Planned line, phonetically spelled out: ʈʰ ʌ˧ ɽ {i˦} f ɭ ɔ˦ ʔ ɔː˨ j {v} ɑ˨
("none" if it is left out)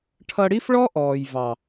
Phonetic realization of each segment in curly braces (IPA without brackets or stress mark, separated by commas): i˦, v